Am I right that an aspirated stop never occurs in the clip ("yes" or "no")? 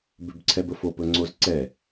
no